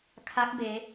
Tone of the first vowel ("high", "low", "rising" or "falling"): rising